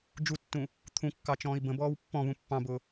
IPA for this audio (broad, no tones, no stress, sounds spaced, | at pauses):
d͡ʒ u tː ũ | t̪ʰ ũ kː ɑ t͡ʃ ɔ̃ː i̯ b ə̃ b ɔː w pː ɔ̃ β ũ pː ɑ̃ b ʊː